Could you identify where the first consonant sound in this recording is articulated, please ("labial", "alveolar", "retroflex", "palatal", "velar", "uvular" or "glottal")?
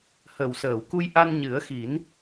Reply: glottal